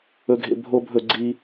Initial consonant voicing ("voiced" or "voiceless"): voiced